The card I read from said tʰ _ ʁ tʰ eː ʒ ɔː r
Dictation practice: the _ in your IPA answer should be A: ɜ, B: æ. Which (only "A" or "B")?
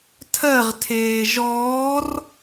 A